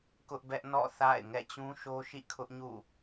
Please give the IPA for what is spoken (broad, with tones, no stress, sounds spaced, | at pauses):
k ʊ˦ ʔ b ɛ˦ ʔ n ɔ̰˦˨ θ a̰˦˨ ɪ̯ ŋ ɛ̰˦˨ t͡ɕ ũ˦ ʃ o˦ ʃ ḭ˦˨ kʰ ʊ˦ ʔ ɲ ṵ˦˨